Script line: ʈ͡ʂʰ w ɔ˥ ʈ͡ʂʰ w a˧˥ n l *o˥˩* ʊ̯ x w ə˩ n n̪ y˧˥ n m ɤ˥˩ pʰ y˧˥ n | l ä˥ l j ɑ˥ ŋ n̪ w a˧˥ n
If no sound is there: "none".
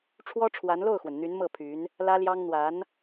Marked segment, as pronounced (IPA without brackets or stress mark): o˥˩